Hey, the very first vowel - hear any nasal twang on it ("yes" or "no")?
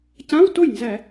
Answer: yes